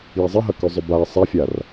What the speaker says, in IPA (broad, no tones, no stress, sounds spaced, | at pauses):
j e zˤ ɨ ɦ ɐ k ʉ zˤ ɵ b a ɐ̯ sˤ ɐ fʲ a r